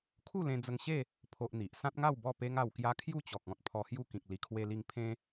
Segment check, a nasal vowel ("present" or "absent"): present